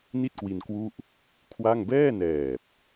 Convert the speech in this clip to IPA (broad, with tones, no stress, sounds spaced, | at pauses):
n i˥˩ t̚ k w i˧ n k w u˥˩ ʔ | kʰ w a˥˩ ŋ b ɛː˥˩ n ɛː˨˩ p̚